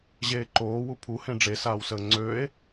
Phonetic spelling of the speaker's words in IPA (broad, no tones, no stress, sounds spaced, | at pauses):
ʑ eː ǃ oː w u pʰ u h ẽ ɖ͡ʐ e s aː w s əː ŋ͡ǀ øː e̯